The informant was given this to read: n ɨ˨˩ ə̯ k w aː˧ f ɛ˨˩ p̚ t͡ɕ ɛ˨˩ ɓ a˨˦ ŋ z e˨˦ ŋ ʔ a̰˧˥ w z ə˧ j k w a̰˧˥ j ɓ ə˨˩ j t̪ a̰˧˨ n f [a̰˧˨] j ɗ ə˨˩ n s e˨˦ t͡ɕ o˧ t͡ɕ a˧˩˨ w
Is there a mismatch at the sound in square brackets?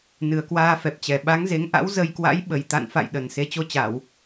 no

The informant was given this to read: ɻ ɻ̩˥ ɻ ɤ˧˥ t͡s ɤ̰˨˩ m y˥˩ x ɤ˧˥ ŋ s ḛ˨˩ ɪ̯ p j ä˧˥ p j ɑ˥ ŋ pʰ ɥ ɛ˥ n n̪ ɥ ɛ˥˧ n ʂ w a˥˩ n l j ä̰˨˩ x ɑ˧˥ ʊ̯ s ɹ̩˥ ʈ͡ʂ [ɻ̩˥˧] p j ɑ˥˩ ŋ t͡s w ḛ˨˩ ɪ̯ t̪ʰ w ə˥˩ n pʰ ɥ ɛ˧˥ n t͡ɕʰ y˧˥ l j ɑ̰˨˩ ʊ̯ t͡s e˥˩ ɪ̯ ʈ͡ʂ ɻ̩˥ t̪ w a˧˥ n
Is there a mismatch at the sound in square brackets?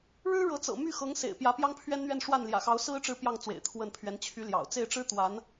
no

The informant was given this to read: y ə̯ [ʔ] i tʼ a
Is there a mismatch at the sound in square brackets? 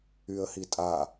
yes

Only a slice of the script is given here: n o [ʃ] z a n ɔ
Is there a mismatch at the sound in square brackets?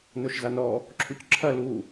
no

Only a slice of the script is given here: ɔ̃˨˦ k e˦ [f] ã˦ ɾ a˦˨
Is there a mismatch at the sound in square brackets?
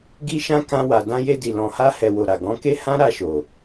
yes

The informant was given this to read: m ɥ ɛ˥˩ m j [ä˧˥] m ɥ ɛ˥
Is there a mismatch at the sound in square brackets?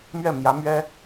no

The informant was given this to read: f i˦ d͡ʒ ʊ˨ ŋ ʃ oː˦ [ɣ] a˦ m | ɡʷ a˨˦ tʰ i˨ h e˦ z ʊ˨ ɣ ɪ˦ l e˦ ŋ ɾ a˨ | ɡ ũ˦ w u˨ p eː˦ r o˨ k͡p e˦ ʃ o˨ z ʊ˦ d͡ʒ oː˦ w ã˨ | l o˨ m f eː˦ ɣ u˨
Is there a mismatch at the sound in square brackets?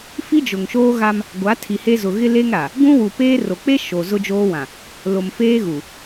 no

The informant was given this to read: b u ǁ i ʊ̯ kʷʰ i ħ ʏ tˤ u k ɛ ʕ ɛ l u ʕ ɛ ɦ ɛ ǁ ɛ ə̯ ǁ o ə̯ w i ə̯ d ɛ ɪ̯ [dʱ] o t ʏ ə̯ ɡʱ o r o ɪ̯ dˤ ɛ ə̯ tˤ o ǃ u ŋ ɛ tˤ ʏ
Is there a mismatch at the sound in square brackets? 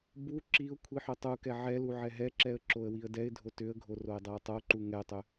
no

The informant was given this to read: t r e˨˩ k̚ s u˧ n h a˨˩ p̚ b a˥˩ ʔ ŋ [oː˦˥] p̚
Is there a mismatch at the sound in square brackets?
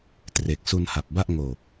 yes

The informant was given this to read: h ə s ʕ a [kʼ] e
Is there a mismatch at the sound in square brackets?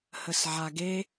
yes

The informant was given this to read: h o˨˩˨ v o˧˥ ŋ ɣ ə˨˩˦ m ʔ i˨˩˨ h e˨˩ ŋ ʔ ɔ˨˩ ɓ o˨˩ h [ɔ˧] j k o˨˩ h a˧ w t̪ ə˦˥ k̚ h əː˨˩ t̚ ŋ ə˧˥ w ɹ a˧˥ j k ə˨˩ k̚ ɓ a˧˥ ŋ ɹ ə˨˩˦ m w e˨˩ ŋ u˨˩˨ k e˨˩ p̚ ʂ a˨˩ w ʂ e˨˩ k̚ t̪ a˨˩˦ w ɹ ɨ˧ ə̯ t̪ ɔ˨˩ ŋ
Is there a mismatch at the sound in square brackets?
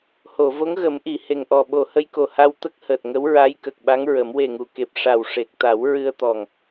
yes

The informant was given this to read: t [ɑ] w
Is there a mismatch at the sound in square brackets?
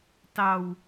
no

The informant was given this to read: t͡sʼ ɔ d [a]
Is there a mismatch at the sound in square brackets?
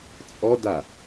no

